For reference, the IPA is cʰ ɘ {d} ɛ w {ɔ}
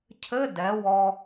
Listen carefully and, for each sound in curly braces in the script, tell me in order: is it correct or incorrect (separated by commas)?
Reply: correct, correct